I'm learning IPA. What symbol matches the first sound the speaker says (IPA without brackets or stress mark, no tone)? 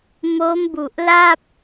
m